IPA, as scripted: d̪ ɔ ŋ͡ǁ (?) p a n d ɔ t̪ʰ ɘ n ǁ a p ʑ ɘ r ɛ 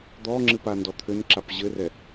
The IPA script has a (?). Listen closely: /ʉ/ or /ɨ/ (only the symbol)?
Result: ɨ